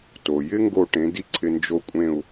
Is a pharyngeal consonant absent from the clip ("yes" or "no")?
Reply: yes